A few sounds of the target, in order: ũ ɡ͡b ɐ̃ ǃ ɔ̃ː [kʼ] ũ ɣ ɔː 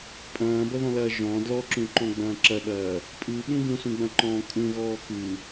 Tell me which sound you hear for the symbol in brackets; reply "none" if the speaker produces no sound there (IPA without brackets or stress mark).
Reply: kʼ